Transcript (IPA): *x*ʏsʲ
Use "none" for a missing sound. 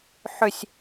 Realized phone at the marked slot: ħ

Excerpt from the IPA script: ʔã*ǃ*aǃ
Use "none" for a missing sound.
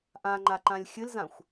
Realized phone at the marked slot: ŋ͡ǃ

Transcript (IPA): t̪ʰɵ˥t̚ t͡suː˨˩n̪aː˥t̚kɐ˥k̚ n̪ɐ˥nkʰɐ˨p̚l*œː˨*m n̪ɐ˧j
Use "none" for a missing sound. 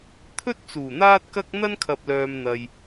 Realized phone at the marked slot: œː˨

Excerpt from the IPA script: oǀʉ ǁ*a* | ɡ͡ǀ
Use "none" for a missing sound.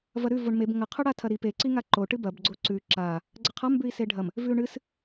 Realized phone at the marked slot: a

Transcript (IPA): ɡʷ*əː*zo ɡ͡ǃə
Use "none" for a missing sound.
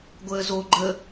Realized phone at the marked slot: əː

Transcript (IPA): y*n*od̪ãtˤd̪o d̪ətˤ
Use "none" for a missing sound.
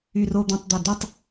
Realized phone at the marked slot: r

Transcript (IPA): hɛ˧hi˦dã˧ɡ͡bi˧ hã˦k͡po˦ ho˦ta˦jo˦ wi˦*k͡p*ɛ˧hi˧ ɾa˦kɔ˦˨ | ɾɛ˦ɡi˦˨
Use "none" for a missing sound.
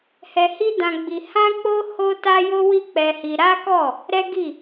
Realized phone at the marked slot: k͡p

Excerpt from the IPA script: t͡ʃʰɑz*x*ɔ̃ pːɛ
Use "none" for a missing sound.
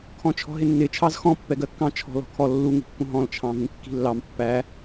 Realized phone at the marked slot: x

